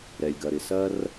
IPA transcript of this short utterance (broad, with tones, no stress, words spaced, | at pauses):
ɾɛ˩lʲɡɐ˩ɾɪ˩ sɐ˥r